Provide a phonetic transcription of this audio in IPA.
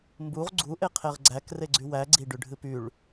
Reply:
m b u ʁ ɡ͡ǀ u ʔ e qʰ e ʁ ɡ͡ǀ æ k r e ɡ͡ǀ y w æ ɡ͡ǀ i ɖ y ɖʱ ɨ p y ɭ

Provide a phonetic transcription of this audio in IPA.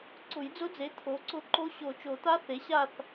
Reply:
ǀ ʊ˨˩˦ j d͡z ʊ˧˥ d͡z e˩˥ t̪ʰ o˩˥ ǀ ʊ˧˥ ǃ o˧˥ ɕ o˨˩˦ t͡ʃ o˨˩˦ t̪ a˧˥ θ e˩˥ ɕ a˦˨ θ

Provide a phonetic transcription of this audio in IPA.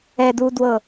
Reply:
ɛ d u d w ɤ

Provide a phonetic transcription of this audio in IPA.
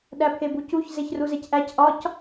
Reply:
ɗ æ pʰ e b u c u ç z e ç r u z e c ʔ æ c ʔ ɒ c

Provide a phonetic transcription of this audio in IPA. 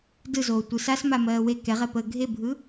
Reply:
d ɯ z oː tʷ ɯ s a s m a m ɜː w e k ɛ ʁ ɛ p əː ɡʱ e bʱ ɯ

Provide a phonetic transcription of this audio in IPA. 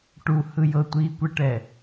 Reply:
ʈ u h ɯ j ɤ tʷ iː kʷ ɛ ʈ ɛ

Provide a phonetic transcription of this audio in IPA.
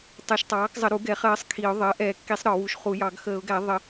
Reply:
tˤ ɛ˨˩˦ ʃ tˤ ɑː˩˥ k zˤ ə˨˩˦ ɾ u˨˩˦ ɡ ɛ˨˩˦ χ ɜː˩˥ sˤ kʰ i˨˩˦ ʊ̯ ðˤ ɜ˩˥ ʔ ɛː˨˩˦ kː i˨˩˦ sˤ ɾ ɒ˨˩˦ w u˩˥ ʃ χ u˨˩˦ j ɑ˨˩˦ ɡ x əː˨˩˦ ʊ̯ ɡ æ˨˩˦ ðˤ ə˨˩˦

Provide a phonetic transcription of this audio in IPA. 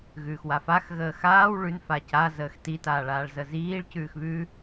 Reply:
ɣ ʉː x w a f a x ɣ əː x aː w ɭ ʉ n f a c a z əː x t i t aː ɭ aː ɭ z ə z iː ɭ c ʉː x β ʉ

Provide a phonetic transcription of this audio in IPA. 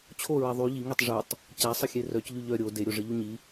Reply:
t͡ɕʰ o ɹ ɛ ðˤ y ʎ i ŋ i tˤ ʐ u tˤ | c a sˤ ə xʲ e r œ c ʎ y ʎ œ ɾʲ o d e ɾʲ o ʐ ə ʎ u ɲ i

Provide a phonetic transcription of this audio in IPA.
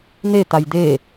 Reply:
n̪ e t̪ a j d̪ e

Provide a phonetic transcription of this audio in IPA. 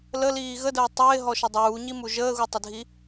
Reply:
l ə l iː ɣ ə d əː tˤ ɪː ɦ ɔ ʃ ə dˤ uː ɲ i m u ʒ əː ɣ u tˤ ɪ dʱ i

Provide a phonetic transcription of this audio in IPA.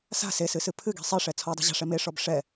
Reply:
s a̤ s e s ɨ s ɨ pʰ ɨ ɡ i̤ sˤ i ʂ ɛ t͡sʰ ɔ dˤ i̤ ʑ a̤ ʂ ɛ m e ʂ ɔ b ʂ ɛ

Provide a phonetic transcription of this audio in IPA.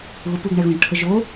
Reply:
ɣ u p u ɡ ɳ ɛ ɣ õ ʒ ʈʰ ə ʒ o

